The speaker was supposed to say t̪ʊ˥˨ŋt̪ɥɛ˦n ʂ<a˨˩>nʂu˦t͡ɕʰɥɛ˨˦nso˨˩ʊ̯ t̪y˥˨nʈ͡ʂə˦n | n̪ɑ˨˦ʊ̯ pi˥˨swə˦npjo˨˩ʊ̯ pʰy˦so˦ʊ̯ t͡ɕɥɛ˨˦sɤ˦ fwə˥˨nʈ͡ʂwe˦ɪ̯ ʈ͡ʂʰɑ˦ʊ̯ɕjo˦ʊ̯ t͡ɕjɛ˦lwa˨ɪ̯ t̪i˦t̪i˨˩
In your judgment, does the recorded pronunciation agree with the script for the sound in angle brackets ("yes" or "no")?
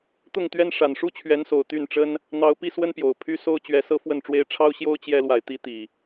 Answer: yes